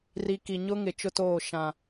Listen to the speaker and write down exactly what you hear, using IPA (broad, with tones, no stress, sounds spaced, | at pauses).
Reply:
r i˨ k i˨ ɲ ʊ˦ ŋ ɪ˨ t͡ʃ ʊ˦ t oː˦˨ ʃ ã˦